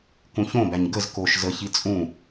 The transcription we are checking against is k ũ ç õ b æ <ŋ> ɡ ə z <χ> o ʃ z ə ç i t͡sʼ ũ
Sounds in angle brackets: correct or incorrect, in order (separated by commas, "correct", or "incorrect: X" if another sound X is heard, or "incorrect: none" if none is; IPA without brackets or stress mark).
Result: incorrect: ɲ, incorrect: k